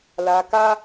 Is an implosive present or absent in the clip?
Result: absent